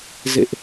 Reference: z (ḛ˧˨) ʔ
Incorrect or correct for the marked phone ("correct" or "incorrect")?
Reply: correct